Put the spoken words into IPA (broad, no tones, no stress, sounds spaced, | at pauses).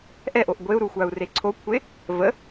ʔ ɛ ʔ o ʔ ɡʷ e u̯ ɾ u xʷ a u̯ r e ǀʰ o kʷʰ e | v ə